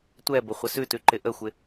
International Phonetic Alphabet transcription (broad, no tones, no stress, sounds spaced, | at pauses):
tʷ ɛ b ə χʷ ɪ s ʉ t ʉ ǃ ɪ ʔ ə xʷ ɪ